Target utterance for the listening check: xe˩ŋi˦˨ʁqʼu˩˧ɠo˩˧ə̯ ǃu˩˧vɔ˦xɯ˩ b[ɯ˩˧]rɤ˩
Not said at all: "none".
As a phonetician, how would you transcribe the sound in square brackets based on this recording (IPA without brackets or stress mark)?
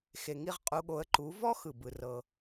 ɯ˩